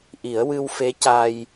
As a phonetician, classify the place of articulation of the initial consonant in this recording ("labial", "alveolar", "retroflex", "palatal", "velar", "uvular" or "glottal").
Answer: glottal